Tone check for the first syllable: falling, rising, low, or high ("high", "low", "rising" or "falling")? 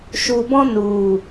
low